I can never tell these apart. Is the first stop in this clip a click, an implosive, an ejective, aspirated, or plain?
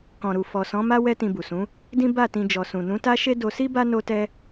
plain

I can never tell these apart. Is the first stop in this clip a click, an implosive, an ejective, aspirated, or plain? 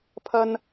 aspirated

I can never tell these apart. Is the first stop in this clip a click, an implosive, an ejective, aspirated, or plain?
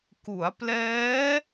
plain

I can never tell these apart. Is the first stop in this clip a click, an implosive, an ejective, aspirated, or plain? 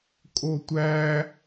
ejective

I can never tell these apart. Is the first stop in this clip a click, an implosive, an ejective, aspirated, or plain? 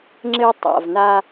click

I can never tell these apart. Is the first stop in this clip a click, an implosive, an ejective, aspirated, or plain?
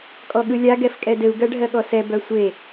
ejective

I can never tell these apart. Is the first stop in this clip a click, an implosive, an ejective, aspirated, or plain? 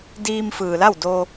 plain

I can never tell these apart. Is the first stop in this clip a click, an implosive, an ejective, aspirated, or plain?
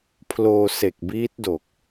aspirated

